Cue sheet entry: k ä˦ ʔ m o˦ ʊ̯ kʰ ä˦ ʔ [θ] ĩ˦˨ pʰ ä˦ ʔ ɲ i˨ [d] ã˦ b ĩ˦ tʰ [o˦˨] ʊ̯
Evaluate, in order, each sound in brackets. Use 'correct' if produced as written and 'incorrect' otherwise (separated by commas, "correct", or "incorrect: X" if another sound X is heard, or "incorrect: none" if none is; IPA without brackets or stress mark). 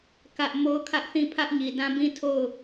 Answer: correct, correct, correct